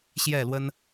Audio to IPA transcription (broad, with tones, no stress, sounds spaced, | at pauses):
ɕ j ɛ˥˨ l w ə˦ n